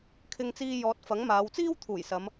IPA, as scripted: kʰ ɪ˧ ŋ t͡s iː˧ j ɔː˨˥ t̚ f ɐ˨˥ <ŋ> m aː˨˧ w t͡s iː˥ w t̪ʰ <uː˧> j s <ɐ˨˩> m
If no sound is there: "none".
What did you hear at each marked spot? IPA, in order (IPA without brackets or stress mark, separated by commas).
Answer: ŋ, uː˨˩, ɐ˨˧